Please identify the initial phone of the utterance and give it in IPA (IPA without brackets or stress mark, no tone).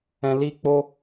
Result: ɛ̃